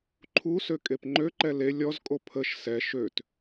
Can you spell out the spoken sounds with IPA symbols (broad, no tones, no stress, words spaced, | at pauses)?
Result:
ǃʰusø kʼepŋ͡ǃøǃɛ le lʲɔzkʼo pʰəʃ sɛ ʃøt